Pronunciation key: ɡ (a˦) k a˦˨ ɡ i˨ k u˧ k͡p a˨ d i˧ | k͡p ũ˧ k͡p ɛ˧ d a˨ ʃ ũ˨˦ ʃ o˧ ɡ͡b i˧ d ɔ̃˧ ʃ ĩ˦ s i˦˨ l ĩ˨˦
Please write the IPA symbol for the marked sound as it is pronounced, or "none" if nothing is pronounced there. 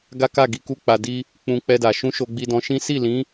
a˦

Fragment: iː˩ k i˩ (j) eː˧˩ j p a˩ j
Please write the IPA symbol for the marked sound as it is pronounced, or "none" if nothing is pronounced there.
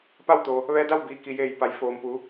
j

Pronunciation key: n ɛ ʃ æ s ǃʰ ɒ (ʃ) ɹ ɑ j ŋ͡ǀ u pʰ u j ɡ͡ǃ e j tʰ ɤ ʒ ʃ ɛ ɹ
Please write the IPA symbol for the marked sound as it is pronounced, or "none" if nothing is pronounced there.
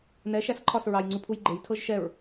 s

